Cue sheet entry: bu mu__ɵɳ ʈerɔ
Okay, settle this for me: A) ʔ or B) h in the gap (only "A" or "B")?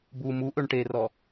A